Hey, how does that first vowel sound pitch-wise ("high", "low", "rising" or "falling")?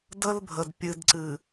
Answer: high